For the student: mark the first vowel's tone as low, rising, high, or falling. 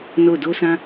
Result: falling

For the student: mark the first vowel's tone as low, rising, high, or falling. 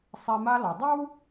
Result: low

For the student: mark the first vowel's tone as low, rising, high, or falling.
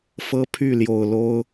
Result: high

